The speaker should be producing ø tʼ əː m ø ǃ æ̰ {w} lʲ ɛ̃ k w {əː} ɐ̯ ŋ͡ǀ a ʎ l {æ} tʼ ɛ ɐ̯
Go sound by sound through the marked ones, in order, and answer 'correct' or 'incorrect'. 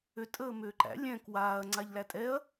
incorrect: none, incorrect: aː, correct

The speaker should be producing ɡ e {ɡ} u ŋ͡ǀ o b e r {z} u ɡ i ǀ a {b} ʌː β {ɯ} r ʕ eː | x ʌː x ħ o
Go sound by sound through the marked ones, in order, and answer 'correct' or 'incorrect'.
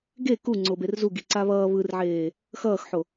incorrect: k, correct, incorrect: β, correct

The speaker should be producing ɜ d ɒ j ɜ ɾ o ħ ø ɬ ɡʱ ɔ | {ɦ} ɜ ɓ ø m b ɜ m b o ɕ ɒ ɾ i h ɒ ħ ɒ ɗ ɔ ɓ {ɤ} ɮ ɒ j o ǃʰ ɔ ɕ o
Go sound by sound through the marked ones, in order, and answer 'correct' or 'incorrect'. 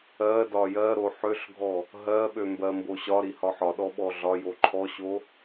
correct, incorrect: ɔ

